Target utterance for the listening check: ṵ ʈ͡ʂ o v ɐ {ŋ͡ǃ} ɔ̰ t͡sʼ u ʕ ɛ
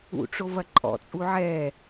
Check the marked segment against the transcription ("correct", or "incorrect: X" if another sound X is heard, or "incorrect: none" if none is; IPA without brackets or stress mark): incorrect: ǃʼ